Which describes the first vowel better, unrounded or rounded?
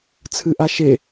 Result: unrounded